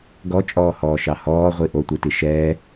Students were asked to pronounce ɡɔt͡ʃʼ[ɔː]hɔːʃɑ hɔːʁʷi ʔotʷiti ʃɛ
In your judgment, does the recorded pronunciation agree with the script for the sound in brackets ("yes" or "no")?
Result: yes